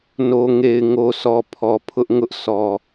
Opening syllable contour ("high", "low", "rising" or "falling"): low